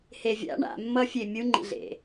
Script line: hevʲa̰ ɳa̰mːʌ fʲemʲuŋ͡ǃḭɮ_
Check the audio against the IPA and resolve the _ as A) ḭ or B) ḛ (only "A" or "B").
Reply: B